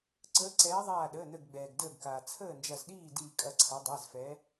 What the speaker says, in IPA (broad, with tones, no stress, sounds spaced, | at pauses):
ǀ əː˨˦ ǀ ɛː˨˦ ðˤ aː˧˩ ɗ əː˩˧˩ n ə˧˩ ɡ ɡ͡b ɛː˩ ɡ d əː˧˩ ɡ k aː˩ t͡sʰ əː˥˨ n d͡ʒ ɐ˧˩ z ɗ iː˥˨ d iː˧˩ kʼ ɐ˧˩ ǀʰ ɐ˨˦ dˤ ɛ˩˧˩ z f ɛ˨˦